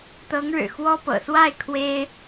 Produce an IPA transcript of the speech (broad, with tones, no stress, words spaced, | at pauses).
t̪ɤ˧˥ŋɻɻ̩˨˩ xwɔ˥pɤ̰˨˩ swa˥˩ɪ̯ kʰwe˥ɪ̯